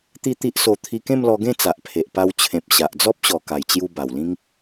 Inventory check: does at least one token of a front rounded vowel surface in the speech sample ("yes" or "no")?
no